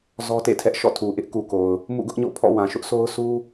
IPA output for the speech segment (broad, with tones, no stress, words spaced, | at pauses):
zɔ˦tḛ˦˨tʰɛ˦ʔ ʃɔ̰˦˨tʰu˨ʔɪ˦ʔ ku˨ko˨ʊ̯ | mṵ˦˨ɡʊ˦ʔɲo̰˦˨pʰɔ̰˦˨ wã˨ʃʊ˦ʔsʰo˦ʊ̯ sʰu˦